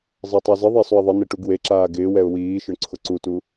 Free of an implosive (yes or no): yes